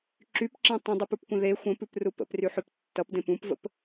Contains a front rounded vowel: yes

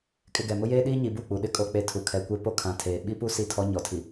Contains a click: no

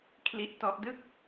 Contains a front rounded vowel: no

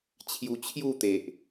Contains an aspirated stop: yes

